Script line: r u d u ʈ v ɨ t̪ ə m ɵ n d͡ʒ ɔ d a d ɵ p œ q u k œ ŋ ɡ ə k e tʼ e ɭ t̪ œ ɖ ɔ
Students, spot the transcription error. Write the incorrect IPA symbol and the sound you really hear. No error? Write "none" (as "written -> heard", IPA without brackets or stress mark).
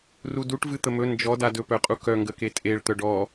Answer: q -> qʼ